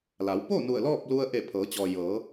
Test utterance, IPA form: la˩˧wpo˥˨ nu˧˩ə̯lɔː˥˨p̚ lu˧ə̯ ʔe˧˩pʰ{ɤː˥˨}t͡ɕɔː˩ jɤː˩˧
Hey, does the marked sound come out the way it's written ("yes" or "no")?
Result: no